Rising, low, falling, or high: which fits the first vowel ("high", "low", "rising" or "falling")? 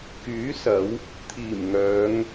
rising